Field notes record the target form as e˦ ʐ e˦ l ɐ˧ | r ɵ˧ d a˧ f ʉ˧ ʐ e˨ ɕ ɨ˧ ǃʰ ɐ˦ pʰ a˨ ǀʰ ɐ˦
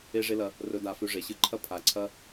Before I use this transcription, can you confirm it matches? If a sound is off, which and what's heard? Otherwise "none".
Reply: none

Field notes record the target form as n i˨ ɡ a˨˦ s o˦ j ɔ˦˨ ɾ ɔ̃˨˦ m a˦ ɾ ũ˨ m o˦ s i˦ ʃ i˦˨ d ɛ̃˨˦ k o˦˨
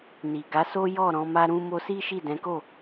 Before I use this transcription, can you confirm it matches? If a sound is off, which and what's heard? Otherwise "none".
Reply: ũ˨ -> ũ˦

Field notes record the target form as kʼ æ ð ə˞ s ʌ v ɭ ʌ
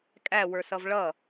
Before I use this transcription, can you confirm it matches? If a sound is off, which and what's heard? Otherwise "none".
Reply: ð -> w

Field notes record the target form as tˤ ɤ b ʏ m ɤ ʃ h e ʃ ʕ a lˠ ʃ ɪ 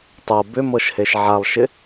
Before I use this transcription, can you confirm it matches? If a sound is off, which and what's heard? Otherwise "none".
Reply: none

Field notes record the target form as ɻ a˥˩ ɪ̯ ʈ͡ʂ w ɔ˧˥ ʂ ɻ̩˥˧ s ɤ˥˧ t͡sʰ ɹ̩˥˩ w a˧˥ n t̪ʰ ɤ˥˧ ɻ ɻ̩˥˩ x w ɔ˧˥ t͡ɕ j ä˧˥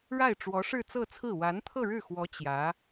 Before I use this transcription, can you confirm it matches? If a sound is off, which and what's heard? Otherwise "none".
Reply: s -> t͡s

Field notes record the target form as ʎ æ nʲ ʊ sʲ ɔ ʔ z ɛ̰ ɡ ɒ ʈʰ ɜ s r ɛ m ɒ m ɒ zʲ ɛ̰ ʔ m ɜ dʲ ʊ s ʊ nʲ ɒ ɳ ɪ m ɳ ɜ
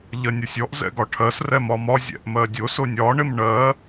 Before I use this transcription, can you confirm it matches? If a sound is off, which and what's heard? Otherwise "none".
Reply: æ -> ɜ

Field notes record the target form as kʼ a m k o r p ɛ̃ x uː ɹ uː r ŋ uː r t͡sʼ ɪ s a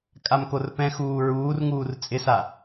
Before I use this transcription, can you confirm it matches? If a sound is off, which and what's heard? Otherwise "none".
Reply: none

